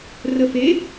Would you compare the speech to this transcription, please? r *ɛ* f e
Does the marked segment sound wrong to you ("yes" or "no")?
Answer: yes